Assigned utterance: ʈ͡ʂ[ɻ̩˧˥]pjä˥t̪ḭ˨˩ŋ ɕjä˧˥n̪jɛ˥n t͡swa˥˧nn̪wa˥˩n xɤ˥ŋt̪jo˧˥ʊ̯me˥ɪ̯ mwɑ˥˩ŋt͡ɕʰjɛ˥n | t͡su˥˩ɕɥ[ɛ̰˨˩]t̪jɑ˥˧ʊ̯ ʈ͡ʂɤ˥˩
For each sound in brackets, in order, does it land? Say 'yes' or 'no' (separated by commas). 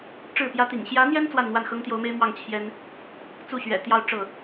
no, yes